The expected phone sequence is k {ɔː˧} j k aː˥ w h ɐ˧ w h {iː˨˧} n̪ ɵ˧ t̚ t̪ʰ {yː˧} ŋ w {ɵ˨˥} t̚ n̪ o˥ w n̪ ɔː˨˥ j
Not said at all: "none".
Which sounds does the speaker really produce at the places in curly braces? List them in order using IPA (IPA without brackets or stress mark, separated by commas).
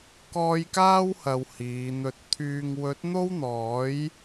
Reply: ɔː˧, iː˨˧, yː˨, ɵ˨˥